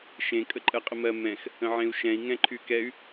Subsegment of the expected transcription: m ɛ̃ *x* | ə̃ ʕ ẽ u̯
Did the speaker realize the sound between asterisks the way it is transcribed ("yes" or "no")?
yes